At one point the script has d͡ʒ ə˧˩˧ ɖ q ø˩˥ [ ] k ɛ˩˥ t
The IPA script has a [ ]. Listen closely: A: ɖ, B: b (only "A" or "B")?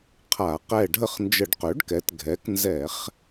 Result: A